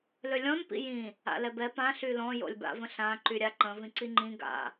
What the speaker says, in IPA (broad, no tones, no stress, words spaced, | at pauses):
lølʲɔ̃n pḭjĩ | a̰lɛbɛ pã ɬylɔ̃ jo̰lʲba̰və̃ɬã ǃyɾʲaǃə̃ vĩǀiŋ͡ǃĩ ɡa̰